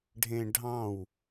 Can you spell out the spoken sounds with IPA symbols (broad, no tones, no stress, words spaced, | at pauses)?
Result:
ɖʱẽɖʱɑ̃w